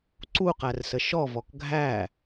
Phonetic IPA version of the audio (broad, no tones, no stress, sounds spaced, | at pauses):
ǀ u q æ r s ə ʃ ɔ v ɔ k ɡʱ æ